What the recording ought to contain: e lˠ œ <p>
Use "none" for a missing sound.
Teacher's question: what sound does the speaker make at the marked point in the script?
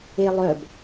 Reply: b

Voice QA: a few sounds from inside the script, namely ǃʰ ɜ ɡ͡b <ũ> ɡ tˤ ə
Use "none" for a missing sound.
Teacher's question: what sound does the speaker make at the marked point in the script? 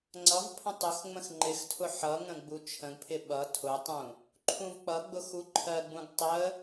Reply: ũ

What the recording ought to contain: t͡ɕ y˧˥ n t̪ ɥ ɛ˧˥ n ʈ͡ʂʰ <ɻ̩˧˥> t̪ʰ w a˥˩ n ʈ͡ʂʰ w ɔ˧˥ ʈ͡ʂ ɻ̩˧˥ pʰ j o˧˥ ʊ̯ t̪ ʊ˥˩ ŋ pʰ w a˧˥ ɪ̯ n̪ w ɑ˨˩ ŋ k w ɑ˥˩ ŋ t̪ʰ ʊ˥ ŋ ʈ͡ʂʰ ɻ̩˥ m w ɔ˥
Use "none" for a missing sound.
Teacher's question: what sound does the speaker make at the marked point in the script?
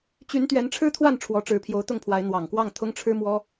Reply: ɻ̩˥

